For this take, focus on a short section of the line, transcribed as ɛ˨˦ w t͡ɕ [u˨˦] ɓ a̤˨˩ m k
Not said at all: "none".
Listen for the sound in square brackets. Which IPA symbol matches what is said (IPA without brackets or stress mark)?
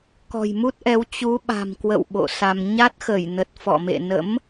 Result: u˨˦